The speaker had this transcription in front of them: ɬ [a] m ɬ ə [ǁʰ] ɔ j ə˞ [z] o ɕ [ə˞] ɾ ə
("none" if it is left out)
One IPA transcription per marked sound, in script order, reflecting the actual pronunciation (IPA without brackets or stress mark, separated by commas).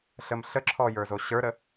ə, ǁʰ, z, ə˞